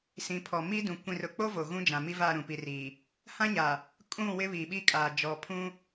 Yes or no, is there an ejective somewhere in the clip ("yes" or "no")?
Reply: yes